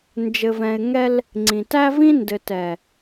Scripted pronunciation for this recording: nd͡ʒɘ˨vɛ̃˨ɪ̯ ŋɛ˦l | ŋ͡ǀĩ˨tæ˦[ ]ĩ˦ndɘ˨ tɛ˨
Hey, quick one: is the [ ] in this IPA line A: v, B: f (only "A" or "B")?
A